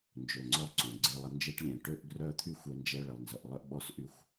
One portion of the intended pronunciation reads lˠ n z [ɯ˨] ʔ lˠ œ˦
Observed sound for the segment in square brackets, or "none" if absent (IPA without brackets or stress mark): ə˨